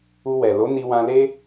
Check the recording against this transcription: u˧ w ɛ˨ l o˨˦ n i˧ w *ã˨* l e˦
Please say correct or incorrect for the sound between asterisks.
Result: incorrect